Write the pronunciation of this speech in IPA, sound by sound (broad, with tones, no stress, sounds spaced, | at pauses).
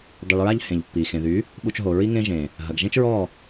dˤ i˨ ɭ ɹ a˧ ʎ h ẽ˨ ʎ pː i˨ x ẽ˨ ð y˨˦ | ɓ u˧ t͡ʃ ɦ o˨ ɹ i˦ ŋ ẽ˦ ʒ ẽ˨ | ɦ ɐ˨ ɡ ʒ ẽ˦ t͡ʃ ɹ ɔ˦˨